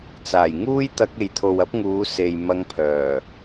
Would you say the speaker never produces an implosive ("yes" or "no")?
yes